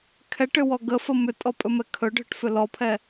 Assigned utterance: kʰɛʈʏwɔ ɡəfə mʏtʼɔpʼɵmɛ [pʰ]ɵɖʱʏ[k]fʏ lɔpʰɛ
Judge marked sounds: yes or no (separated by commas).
no, no